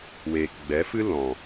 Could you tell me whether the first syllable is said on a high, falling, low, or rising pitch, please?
low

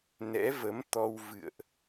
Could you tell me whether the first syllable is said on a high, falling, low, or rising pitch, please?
rising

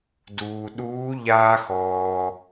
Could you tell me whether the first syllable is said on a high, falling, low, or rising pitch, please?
low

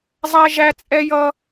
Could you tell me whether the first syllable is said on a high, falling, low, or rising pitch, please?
high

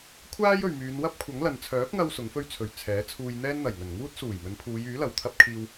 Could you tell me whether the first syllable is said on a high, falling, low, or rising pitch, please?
high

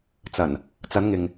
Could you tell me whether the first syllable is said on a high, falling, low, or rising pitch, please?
low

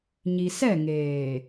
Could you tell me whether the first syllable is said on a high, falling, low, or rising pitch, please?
low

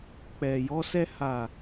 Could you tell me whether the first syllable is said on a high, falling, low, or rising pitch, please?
low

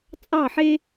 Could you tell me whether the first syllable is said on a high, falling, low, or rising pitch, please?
falling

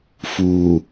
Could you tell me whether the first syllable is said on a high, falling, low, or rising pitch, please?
low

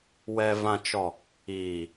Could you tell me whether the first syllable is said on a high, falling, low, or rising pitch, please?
low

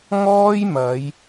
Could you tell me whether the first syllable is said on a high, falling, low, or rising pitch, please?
high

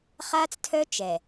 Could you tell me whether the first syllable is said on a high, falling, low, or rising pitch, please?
high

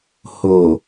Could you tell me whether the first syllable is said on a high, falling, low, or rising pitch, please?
low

